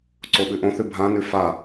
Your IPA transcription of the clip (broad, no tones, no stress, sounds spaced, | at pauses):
ǀ o ɓ ʉ ʔ õ θ ʉ bʱ ã n ʉ f a